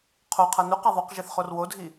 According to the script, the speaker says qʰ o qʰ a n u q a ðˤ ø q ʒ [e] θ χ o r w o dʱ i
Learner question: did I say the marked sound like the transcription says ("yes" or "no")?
yes